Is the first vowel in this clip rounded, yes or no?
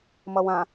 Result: no